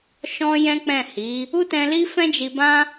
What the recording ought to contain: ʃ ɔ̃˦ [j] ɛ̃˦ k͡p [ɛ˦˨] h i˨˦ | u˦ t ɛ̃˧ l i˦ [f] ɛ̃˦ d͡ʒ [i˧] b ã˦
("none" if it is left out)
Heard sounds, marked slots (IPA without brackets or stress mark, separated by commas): j, ɛ̃˦˨, f, i˧